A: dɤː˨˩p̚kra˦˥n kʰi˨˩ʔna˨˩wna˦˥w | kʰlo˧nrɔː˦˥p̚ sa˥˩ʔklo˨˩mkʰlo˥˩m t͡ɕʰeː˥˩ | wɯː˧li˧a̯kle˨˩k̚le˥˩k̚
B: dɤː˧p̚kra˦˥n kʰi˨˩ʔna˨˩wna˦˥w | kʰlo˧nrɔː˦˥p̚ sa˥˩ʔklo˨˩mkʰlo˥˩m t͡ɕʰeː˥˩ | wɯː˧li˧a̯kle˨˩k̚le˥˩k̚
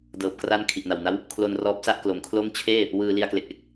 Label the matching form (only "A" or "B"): A